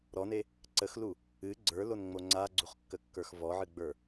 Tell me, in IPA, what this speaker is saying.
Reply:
ɾɔne | ǀəxlu | ɨ ɡ͡ǀə˞lonŋ͡mo ŋ͡ǀaɡ͡ǀuχkːəkːə˞x vɔʕɨɡ͡bə˞

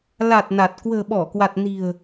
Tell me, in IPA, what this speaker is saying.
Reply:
la˨˩t̚ na˨˩t̚ kwə̤ː˨˩ɓɔ˧˩kwa˨˩t̚ ni̤˨˩ə̯

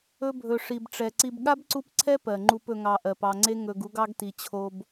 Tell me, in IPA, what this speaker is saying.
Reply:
ɵ˨bʱɵ˩ʂi˩bʈ͡ʂɛ˩ ǀi˨bɠa˥bǀu˦pǀʰɛ˥ pɜ˩ŋ͡ǃu˨p ɵ˨ŋɑ˨ ʔɜ˩pɑ˨ŋ͡ǀe˦ ŋɵ˨ɡ u˦ɡɑ˥ɡti˨t͡ɕʰo˦b

